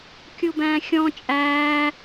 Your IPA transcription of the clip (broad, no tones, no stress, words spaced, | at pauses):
kʲubæ̃ːxʲɔ̃ t͡ʃʼæː